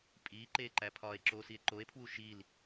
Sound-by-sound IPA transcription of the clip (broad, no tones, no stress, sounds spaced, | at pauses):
pʼ iː ǃ eː ǃ æ pʰ ɒː e̯ ǁ oː s i e̯ ǃ o e̯ pʰ w u ʃ i l